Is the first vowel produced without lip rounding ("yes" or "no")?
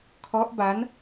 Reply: no